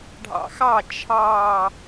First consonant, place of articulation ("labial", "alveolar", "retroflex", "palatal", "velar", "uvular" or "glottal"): retroflex